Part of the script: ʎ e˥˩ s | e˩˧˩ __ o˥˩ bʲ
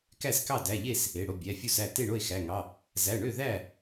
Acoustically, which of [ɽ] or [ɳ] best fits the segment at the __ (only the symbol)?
ɽ